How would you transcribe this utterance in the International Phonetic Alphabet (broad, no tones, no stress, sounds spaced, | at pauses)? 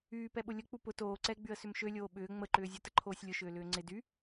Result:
yː p ɛ ɓ ʊ lʲ ə k͡p u p ʊ t oː ǀ ɛ ɡ͡b y ə̯ s ʏ m ʃ ø lʲ oː ɓ ʏː ŋ͡m ə ǃ ʏː zʲ o t ə ǃʰ oː sʲ lʲ ʊ ʃ ʏː l ʏː ŋ͡ǀ ɪ d y